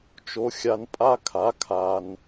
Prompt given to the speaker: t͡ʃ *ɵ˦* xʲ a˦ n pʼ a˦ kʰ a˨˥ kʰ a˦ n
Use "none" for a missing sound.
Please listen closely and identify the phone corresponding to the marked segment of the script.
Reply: o˦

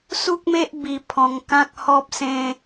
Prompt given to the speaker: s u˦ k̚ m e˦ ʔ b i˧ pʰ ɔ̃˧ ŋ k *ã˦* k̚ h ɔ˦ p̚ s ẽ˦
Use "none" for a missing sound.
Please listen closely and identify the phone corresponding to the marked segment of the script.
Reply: ã˦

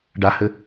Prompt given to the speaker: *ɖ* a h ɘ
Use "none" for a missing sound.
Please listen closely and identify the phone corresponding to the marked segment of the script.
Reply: ɖ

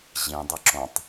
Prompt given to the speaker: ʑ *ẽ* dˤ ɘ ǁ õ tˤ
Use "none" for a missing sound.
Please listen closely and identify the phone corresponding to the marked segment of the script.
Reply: ĩ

